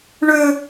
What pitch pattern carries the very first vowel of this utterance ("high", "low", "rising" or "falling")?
high